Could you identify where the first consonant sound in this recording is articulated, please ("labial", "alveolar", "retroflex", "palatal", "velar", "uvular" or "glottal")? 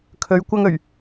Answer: velar